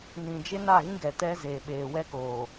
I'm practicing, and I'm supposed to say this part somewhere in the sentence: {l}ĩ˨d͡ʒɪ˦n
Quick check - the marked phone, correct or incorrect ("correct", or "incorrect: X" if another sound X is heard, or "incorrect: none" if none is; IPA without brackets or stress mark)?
incorrect: n